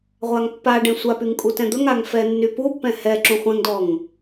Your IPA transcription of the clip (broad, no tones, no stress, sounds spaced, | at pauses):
ʁʷ a ŋ pː a ɖ ɛ̃ sʷ a p y ŋ kʼ u t ɛ̃ d̪ ɵ ŋ a ŋ f ɛ nː y p u pː ɛ̃ h ɛ ǁ ũ χʷ ɛ̃ ŋ d ɔ ŋ